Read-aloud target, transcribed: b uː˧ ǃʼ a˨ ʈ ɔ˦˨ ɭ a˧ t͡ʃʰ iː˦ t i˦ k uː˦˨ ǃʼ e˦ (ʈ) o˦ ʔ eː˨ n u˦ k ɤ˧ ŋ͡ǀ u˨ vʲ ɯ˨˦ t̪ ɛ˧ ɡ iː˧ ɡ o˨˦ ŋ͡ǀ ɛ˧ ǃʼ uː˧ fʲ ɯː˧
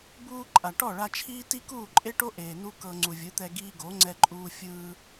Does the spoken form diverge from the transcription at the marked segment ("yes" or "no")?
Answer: no